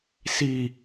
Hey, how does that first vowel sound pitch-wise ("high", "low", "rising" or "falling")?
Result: low